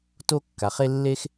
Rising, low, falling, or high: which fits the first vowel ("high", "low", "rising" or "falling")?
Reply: high